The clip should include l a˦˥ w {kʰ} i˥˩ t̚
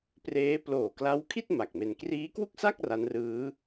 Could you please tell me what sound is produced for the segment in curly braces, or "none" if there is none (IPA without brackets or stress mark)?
kʰ